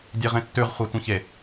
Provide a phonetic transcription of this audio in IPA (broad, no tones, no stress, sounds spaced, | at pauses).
dʲ e ʁ ẽ tː ʉ ʁ χʷ a tʷ ĩ ç e